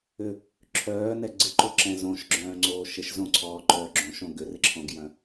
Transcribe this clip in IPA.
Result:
ʏ | ǁʰ œː n ɛ ɡ͡ǀ ɪ ǃ o ǁ ɛ̃ z õ ʃ ɡ͡ǁ œ̃ː ŋ͡ǀ oː ʃ ɪ ʃ z õ ǀʰ ɔː ǃ œː ɡ͡ǁ õ ʃ õ ɡ ʏ r ɪ ǁʰ õ ɡ j œ̃

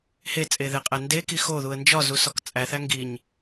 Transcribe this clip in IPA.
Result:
h e t͡sʼ e ð e qʼ æ n d e k i x o ð u ə̯ n d͡ʒ ɒ z u s ɒ k t͡sʼ æ θ æ ŋ ɡ i ɲ

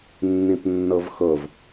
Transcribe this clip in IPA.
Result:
nː ĩ p nː ɤ v x ɤ v

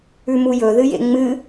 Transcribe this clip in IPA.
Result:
ʉ m u j ɵ ð ɨ j ḛ ŋ͡m ɨ

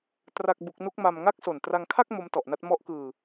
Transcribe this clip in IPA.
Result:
t r a˥˩ k̚ b u˦˥ k̚ n u˦˥ k̚ m a˧ m ŋ a˥˩ k̚ s o˨˩ n t r a˧ ŋ kʰ a˥˩ k̚ m o˦˥ m t ɔ˨˩ ʔ n a˦˥ t̚ m ɔ˦˥ ʔ k ɯː˧

